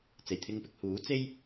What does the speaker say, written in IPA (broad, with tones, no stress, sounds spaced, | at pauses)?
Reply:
t͡s e˨˩ j t̪ʰ ɪ˧ ŋ p ɪ˧ k̚ h uː˨˥ t͡s e˥ j